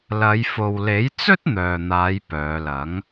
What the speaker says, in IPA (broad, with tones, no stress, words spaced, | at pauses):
lɐ˨˧jfo˨wle˨˥j t͡sɵ˥t̚n̪œː˨n̪aː˨˧j pœː˨˧lɐ˨˥ŋ